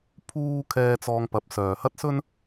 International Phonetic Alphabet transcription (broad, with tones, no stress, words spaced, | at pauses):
pʰuː˥ kʰɛː˧t͡sɔː˧ŋpɐ˨˥p̚ sœː˨hɐ˥t̚sɵ˥n